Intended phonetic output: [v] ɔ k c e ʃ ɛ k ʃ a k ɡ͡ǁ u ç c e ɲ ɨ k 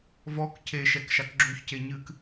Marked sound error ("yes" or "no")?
no